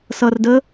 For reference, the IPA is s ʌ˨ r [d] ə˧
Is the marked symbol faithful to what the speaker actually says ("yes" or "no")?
yes